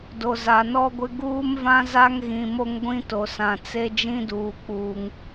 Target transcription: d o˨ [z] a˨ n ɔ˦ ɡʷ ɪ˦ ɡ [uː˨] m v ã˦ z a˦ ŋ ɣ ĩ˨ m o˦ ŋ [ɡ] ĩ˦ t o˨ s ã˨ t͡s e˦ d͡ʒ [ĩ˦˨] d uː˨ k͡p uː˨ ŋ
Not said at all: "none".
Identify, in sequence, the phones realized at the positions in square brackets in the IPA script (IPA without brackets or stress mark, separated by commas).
z, uː˦, ɡʷ, ĩ˦